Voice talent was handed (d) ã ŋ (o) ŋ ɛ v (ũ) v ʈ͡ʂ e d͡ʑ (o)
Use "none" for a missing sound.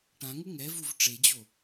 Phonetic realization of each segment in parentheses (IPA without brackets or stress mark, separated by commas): ʈ, u, u, o